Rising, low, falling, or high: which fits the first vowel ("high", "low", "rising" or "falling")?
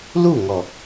falling